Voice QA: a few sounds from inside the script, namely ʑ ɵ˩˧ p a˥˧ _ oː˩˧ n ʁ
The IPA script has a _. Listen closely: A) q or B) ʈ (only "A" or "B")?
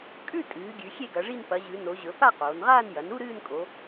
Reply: A